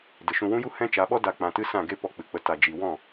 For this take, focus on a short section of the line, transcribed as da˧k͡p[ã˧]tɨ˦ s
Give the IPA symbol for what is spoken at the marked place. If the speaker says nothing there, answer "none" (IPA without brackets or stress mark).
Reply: ã˧